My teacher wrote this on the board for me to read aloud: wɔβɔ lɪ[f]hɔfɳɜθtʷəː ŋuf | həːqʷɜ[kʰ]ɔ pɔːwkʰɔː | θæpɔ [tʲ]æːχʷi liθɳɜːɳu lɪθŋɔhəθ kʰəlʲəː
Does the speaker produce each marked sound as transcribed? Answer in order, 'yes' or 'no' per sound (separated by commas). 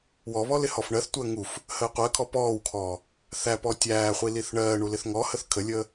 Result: no, yes, yes